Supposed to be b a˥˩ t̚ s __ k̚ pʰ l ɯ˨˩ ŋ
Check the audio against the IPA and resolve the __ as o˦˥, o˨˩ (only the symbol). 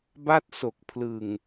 o˨˩